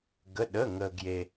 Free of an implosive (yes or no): no